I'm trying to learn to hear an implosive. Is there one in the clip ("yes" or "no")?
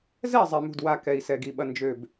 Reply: yes